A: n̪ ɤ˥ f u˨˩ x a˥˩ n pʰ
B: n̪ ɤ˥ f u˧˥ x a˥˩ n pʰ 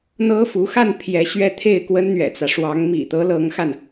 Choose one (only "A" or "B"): B